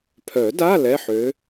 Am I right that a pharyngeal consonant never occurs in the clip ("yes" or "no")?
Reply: no